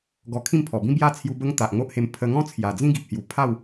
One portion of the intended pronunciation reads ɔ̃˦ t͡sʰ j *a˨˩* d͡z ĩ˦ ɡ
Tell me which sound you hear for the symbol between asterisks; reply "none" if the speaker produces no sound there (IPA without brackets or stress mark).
a˨˩